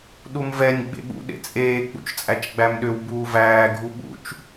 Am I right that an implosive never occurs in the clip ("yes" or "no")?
no